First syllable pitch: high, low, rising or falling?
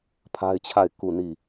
high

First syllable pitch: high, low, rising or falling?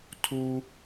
low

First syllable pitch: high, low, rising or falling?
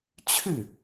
falling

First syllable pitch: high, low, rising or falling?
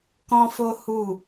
high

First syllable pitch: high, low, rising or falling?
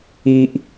low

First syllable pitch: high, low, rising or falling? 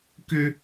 high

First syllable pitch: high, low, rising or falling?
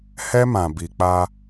high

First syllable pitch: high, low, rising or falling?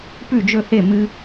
falling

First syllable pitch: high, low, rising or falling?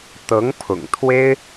rising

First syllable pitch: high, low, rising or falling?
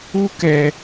high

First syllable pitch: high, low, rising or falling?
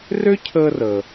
high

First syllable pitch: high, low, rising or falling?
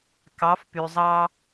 rising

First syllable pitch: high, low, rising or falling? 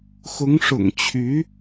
rising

